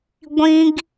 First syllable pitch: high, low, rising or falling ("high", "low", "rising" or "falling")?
high